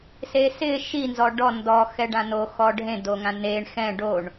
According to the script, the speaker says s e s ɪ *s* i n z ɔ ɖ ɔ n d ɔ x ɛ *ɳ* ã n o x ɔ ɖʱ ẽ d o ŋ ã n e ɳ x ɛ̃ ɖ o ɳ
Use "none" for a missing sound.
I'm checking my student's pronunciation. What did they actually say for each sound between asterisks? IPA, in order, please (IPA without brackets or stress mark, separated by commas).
ʃ, ɖ